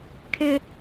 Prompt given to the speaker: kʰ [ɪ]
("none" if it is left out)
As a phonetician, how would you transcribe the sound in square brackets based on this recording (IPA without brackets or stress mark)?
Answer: ɪ